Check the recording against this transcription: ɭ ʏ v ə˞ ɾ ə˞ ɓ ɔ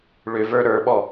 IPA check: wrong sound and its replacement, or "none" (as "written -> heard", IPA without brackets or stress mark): none